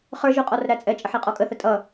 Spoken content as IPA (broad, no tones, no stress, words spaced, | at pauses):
χə˞ʒu qʼɔrɾæt͡sʼɛt͡ʃʼəħ iqʼɔkʼəθə tʼʌ